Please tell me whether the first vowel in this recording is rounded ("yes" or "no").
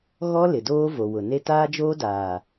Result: yes